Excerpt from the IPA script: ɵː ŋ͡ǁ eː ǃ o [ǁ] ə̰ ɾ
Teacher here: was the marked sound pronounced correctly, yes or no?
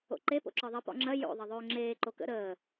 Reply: no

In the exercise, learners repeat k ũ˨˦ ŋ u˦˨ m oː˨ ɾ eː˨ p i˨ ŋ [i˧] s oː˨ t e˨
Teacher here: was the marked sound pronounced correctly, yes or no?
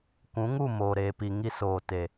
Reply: yes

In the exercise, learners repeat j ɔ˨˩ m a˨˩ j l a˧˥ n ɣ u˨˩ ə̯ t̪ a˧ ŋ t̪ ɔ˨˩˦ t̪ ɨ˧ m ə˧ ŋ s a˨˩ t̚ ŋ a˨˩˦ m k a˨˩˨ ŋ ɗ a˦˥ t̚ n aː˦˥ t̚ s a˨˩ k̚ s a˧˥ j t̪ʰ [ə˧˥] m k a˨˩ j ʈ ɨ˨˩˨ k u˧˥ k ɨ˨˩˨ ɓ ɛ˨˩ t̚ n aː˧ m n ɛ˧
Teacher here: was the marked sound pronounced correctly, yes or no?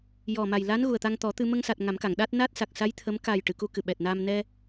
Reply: yes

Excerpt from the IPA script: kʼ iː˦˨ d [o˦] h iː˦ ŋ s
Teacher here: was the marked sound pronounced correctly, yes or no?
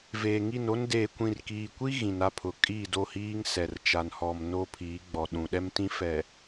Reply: no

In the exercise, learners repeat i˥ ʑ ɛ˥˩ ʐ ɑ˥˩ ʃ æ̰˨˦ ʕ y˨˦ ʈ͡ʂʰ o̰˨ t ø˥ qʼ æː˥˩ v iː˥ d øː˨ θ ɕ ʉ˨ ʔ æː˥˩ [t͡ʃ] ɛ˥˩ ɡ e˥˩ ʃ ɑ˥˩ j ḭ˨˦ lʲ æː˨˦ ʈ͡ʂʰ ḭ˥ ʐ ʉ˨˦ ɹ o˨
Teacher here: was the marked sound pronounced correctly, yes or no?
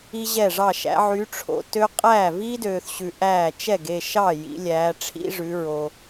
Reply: yes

